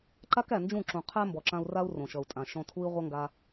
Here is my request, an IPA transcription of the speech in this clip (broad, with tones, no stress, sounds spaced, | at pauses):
ǃ a˦ k æ˨ n d͡ʒ ũ˦˨ ǁ ũ˨ qʰ æ˦ m b ɔ˨ ǁ ã˧ u̯ r a˦ u̯ r õ˨ ʃ ʌ˨ u̯ tʼ ã˨ ʃ ɔ̃˧ tʰ u˦ i̯ ʁʷ ʌ˦ ŋ ɡ a˧